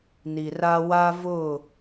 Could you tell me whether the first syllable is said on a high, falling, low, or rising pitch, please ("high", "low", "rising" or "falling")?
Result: low